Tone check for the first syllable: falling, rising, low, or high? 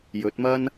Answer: rising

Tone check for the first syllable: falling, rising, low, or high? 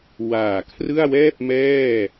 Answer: low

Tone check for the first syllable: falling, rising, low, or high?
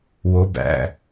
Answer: rising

